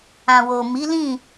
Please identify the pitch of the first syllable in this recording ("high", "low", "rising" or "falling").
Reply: low